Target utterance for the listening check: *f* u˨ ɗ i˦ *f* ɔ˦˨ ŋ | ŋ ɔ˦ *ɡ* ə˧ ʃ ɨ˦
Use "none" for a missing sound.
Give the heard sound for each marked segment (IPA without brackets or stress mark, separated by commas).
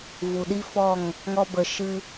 v, f, b